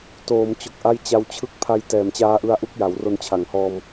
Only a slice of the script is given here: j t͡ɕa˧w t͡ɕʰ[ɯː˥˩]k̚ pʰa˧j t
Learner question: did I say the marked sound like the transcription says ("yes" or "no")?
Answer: no